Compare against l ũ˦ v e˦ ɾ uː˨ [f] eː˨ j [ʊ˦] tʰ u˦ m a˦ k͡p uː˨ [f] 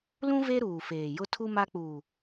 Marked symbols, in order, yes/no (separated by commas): yes, yes, no